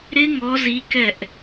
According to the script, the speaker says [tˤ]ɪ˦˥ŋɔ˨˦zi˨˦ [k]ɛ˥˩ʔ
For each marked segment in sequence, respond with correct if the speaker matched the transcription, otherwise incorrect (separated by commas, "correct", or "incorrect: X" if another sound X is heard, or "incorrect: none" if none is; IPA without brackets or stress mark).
incorrect: ɾ, correct